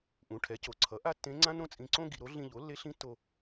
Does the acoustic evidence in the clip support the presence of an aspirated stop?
yes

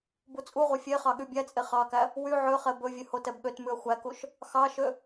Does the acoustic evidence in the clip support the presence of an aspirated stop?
no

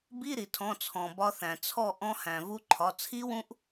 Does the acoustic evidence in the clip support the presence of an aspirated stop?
yes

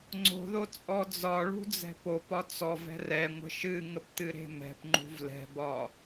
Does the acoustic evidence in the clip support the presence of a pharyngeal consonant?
no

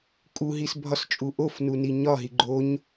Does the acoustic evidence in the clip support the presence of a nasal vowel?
no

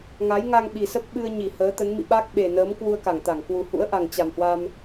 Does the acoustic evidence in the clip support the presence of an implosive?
yes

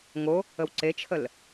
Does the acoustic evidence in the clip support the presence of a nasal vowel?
no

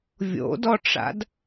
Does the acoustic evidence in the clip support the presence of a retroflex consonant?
yes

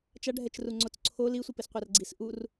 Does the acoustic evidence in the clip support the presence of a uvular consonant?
yes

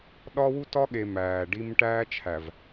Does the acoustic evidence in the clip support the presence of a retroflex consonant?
yes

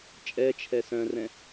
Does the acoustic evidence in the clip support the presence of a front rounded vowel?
yes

